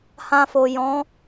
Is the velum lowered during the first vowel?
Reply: yes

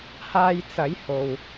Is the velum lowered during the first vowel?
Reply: no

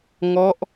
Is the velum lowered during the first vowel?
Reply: no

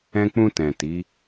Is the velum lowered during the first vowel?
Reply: yes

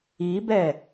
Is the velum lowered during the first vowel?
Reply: no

